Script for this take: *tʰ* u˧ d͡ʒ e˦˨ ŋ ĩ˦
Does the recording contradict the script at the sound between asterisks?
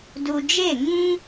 yes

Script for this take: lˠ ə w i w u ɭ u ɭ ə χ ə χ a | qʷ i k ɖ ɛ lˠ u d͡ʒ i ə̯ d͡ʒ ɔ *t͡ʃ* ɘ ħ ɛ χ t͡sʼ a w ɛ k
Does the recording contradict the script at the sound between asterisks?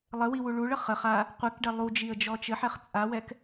no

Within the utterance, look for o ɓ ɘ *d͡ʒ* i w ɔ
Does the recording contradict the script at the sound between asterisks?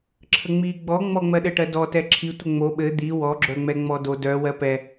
yes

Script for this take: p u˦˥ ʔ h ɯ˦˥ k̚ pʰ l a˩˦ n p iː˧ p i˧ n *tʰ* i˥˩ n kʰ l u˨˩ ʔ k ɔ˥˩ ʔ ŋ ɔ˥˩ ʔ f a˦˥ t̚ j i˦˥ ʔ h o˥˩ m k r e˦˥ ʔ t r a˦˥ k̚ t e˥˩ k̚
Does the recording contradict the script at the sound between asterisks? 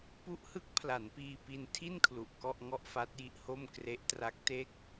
no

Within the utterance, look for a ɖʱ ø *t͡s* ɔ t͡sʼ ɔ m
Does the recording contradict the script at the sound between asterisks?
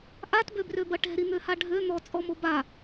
yes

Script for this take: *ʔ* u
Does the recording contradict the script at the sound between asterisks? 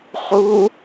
yes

